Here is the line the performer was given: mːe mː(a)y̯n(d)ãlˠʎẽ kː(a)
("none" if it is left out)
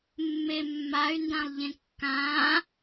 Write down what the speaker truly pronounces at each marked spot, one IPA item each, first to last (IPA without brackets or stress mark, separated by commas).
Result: a, d, ã